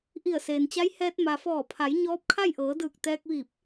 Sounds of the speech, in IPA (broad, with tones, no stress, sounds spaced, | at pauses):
ʔ i˧˩ ə̯ s eː˩ n t͡ɕ a˧˥ j h ɛː˧ t̚ m a˩ f ɔː˧˩ pʰ a˩˧ j ɲ ɔː˧˥ p̚ kʰ a˥˨ j ʔ ɤː˩˧ d ɯː˧˩ k̚ t̪ ɛː˧ k̚ ʋ iː˧˩ p̚